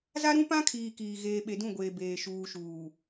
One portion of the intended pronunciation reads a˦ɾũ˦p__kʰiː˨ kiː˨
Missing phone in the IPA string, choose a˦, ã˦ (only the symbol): ã˦